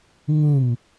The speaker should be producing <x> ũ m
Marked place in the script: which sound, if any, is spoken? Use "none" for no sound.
ŋ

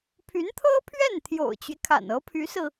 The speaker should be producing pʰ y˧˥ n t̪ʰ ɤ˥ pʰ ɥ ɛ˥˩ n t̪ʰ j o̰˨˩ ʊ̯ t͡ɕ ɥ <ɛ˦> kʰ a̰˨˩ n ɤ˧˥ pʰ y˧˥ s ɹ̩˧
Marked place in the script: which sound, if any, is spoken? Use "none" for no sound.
ɛ˦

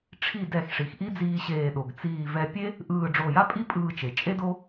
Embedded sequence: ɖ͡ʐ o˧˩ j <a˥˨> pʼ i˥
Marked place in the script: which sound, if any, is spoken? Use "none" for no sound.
a˥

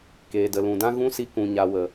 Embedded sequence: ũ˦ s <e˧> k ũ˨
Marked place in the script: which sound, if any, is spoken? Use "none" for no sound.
i˧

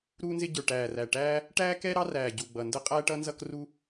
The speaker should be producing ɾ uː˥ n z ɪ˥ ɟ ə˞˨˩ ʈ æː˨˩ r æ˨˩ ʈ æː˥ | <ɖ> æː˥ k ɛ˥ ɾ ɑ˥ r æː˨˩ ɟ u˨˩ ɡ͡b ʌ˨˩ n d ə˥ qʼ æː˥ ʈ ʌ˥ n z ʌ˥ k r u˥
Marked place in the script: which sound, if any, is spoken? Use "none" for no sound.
ʈ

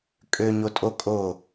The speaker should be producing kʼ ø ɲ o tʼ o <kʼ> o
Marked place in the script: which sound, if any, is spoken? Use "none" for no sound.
kʼ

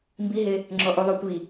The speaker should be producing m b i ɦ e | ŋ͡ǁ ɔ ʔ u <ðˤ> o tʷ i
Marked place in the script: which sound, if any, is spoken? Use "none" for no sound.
ðˤ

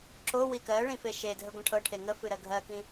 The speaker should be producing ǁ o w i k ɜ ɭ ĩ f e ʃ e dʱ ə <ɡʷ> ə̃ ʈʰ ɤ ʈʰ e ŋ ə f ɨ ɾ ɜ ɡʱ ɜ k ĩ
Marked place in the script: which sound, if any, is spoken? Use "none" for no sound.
ɡʷ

